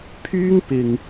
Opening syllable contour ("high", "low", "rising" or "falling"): high